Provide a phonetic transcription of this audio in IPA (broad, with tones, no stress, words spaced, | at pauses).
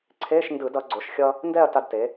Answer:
ǀʰe˧˥˧ʃ ndɯ˧˩˧d ʌ˩˧ɡ͡ǀo˩˧ʃxʲʌ˧ | ndɛ˥˧ɐ̯ta˧dte˩˧